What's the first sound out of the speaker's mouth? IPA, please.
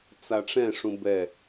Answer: t͡s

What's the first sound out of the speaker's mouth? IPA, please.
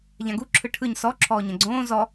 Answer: ʎ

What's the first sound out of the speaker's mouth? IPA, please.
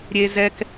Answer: ɾʲ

